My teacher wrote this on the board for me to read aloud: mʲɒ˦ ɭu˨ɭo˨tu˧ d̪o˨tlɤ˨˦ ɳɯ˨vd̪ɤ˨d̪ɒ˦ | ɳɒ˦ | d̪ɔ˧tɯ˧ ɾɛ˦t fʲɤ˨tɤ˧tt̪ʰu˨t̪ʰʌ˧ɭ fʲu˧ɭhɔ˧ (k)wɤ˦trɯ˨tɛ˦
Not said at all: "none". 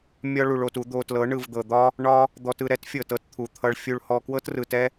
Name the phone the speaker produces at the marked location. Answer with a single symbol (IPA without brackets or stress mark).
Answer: k